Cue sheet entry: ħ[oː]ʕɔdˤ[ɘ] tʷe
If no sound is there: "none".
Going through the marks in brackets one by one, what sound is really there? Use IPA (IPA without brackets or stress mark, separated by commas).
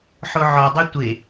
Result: o, ø